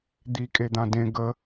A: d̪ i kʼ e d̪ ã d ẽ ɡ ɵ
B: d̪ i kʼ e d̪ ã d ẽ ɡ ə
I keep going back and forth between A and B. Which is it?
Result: B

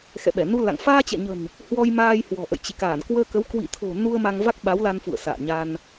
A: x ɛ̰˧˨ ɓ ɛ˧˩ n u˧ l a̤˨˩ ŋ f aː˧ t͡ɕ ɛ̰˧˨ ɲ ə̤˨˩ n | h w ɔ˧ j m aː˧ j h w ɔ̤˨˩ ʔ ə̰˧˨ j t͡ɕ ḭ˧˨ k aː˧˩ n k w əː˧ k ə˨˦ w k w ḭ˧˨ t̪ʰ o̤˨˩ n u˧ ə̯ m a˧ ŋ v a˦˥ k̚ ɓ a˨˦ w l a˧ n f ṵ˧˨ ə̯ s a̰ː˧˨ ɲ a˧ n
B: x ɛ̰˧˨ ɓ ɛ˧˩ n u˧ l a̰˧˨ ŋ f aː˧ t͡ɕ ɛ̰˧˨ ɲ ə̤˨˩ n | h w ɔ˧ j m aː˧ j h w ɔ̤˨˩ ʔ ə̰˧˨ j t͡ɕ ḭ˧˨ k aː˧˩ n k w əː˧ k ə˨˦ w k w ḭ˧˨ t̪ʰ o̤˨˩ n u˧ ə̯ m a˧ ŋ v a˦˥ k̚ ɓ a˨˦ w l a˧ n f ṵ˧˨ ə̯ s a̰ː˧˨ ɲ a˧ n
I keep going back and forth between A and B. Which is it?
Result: B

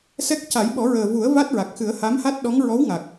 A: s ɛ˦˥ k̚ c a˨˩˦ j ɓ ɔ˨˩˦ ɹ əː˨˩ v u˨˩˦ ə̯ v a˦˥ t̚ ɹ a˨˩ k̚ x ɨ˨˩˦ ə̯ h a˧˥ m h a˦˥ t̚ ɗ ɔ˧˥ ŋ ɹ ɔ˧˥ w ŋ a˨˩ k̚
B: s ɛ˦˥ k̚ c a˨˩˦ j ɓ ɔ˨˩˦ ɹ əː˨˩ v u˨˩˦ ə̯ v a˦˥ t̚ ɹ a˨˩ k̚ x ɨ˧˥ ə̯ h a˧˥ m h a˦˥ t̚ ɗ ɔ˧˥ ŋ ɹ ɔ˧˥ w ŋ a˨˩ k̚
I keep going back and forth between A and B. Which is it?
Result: A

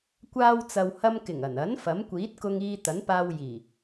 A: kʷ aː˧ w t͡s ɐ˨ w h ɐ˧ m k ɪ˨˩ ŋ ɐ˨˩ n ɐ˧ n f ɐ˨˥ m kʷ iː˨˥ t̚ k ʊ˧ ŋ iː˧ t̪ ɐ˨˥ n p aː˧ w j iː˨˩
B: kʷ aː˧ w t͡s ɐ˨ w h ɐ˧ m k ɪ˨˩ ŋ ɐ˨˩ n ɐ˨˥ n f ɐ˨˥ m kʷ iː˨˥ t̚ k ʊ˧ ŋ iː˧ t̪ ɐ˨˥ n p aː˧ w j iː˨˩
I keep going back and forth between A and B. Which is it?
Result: B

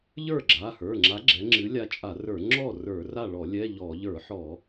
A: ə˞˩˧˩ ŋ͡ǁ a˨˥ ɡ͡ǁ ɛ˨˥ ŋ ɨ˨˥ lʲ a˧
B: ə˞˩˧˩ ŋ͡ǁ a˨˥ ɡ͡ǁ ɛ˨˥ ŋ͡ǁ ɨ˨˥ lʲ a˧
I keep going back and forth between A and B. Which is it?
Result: B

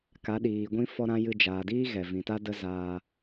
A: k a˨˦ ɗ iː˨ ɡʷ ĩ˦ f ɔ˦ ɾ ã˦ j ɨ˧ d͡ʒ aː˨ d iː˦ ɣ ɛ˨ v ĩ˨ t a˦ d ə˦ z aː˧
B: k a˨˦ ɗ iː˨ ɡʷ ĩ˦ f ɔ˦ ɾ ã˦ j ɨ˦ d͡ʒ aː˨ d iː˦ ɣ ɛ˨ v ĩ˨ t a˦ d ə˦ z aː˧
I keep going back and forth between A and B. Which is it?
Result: A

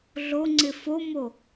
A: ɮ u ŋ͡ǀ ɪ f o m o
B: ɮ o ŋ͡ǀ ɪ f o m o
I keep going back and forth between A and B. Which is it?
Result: B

